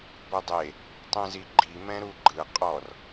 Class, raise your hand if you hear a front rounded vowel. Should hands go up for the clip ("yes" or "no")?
no